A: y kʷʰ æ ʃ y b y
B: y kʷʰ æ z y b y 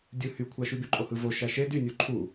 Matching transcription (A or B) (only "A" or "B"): A